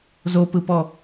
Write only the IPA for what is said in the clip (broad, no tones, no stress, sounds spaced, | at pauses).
z o p ɯ p ɔ